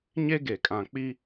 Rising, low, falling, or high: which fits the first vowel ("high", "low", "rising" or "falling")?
high